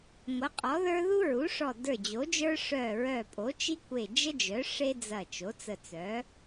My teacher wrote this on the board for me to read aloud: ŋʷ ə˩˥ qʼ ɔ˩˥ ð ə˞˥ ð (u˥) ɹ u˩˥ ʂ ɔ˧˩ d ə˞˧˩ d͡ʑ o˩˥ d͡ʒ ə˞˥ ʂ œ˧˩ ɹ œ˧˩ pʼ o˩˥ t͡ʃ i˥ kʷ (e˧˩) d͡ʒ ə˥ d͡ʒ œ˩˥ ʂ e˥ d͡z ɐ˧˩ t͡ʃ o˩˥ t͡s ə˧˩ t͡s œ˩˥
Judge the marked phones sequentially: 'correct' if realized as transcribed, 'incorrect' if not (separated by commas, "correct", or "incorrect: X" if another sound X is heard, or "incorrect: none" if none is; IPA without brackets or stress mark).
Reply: correct, correct